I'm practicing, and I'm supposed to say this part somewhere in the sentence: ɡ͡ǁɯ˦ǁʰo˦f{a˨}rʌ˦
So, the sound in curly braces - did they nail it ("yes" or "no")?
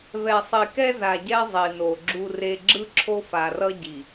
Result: yes